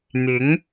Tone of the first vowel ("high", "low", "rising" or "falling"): rising